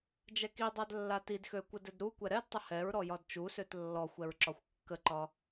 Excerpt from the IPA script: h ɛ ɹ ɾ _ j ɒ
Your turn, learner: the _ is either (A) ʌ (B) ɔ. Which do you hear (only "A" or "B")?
B